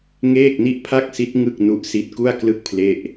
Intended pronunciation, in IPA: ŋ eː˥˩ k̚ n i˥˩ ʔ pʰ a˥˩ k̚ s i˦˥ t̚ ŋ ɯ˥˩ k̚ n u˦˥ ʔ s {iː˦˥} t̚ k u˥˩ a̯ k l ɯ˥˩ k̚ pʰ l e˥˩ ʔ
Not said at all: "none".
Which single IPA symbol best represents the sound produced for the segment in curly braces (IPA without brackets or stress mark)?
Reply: i˦˥